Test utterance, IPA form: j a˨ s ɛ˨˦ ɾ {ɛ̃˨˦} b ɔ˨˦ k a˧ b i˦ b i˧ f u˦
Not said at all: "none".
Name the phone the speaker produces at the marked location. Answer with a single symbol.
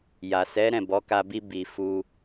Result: ɛ̃˦˨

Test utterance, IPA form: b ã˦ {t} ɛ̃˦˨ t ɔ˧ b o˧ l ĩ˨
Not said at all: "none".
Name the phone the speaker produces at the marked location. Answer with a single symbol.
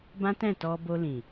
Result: t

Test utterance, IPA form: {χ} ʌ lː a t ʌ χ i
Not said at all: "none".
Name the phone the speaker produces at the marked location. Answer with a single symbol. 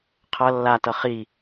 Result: qʰ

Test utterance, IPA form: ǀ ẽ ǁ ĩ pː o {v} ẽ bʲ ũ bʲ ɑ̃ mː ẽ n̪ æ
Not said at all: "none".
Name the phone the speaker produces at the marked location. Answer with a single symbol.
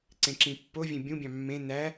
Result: vʲ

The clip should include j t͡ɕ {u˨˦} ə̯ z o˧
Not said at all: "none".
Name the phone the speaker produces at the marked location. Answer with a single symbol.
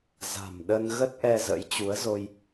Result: u˨˦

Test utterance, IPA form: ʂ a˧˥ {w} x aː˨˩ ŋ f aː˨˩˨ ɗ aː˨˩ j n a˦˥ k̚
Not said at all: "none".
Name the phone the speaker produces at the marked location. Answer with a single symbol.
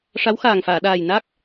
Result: w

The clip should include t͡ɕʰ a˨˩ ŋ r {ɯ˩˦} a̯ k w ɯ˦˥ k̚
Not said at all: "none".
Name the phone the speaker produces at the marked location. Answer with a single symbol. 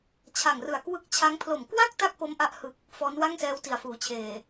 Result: ɯ˨˩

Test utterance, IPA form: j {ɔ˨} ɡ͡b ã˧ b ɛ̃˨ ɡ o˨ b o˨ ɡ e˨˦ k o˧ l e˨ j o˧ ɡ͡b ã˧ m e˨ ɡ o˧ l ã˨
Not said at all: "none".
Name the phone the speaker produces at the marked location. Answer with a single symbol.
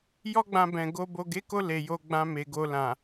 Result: ɔ˦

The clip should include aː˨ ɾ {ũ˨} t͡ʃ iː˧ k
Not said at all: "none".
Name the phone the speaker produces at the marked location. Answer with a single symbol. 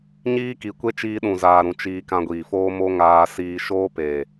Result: ũ˨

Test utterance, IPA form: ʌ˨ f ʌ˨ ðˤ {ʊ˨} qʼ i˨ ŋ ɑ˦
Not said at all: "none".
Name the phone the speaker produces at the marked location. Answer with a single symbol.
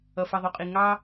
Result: u˨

